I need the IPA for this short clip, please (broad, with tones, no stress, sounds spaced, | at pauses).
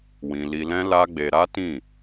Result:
w ĩ˧ l i˧ l ɛ̃˦ l a˦ ɡ͡b e˧ ɾ a˦ t ĩ˦˨